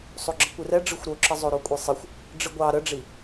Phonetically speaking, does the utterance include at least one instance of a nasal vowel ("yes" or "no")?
no